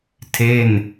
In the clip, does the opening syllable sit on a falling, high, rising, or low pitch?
falling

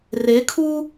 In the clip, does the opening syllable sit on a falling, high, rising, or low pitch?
rising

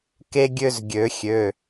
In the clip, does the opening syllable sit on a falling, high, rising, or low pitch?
high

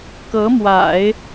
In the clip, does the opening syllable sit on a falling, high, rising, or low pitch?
rising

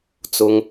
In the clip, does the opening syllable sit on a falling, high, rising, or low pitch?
high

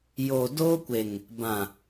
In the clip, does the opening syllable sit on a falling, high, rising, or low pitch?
low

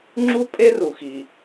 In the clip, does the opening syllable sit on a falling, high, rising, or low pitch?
high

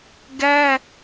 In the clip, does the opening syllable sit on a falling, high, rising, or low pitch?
high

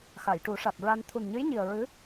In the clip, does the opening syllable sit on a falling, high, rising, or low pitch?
low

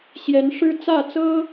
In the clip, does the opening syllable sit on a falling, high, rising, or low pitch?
rising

